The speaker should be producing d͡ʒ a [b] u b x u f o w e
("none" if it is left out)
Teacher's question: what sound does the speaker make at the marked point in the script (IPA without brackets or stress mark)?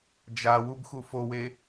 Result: w